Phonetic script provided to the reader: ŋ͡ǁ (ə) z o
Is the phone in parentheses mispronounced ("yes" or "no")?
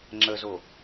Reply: no